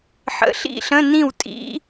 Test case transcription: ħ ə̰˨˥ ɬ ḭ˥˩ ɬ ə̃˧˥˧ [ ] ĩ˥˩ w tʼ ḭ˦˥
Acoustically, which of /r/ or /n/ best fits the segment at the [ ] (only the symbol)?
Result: n